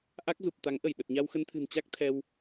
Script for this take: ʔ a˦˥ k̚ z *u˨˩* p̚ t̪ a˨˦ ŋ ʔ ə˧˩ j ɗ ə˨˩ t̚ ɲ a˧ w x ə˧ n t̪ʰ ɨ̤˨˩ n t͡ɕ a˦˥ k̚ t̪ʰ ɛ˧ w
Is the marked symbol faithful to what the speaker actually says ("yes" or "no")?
yes